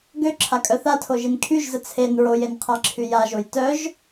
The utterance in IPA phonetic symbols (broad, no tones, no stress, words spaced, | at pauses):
ɡøǁʰakʼœ θatʰoʒin kʰyʒzə t͡sʰen ɹojenqʰaǁʰy jaʒoj tœʒ